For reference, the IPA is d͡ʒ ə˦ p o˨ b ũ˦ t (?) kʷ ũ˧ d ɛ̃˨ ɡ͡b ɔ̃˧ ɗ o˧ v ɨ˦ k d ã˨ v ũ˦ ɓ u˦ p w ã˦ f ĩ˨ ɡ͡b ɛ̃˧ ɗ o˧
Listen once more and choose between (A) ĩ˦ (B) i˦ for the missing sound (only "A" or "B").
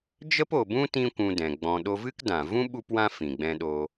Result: A